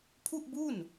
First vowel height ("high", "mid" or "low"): high